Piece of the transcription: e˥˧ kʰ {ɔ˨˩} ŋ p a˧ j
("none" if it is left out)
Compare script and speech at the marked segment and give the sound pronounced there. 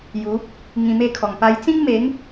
ɔ˨˩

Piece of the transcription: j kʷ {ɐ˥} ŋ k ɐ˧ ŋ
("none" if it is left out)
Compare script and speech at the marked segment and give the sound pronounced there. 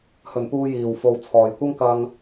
ɐ˥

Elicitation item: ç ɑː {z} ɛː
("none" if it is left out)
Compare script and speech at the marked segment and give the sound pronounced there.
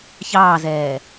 z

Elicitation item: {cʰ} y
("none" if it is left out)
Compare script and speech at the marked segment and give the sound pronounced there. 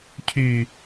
cʰ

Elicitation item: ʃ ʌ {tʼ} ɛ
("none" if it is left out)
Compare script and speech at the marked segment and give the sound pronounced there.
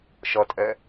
tʼ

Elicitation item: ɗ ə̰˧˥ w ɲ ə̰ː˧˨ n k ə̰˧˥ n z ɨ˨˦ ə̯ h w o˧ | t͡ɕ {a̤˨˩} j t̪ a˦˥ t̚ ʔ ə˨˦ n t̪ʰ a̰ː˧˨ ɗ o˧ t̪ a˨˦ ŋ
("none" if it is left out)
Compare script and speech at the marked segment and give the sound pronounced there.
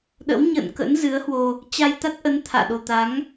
a˧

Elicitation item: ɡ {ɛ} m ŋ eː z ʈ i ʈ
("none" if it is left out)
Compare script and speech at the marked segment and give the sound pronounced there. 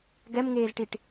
ɛ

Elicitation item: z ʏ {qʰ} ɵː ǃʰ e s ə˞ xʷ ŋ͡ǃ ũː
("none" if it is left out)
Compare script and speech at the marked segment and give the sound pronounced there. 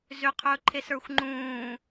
qʰ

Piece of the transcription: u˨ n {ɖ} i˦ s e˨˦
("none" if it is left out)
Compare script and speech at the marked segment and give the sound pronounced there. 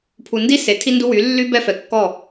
d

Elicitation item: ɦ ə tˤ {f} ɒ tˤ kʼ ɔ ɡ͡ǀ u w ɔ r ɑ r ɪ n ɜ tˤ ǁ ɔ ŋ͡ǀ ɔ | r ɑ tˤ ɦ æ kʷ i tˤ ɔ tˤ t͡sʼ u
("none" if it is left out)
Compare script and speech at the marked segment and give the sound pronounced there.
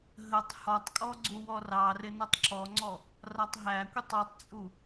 h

